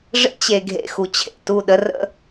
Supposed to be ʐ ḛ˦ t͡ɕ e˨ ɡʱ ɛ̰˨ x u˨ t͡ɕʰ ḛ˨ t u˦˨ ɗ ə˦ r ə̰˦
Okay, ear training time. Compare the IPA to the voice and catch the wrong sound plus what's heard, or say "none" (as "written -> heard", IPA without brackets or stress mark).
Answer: ɛ̰˨ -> ḛ˨